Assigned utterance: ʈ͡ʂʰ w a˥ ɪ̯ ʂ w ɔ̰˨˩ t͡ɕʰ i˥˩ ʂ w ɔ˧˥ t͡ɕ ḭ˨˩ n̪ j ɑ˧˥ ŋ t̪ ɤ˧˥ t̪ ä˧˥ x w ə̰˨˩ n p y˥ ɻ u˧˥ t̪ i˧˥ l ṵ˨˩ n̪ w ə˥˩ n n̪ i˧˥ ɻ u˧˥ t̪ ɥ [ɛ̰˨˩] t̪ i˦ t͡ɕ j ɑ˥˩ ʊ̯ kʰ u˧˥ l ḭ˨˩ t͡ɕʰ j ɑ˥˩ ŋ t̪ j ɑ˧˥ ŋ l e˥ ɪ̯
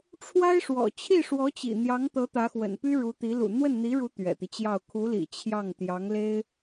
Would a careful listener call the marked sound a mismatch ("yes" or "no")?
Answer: no